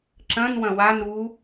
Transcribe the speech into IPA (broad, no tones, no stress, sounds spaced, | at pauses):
ǁ ɐ̃ n w ɐ̃ w a n ɾ u